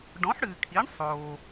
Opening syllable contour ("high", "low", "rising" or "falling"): rising